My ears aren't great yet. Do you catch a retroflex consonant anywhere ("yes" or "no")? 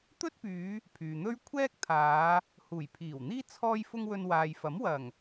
no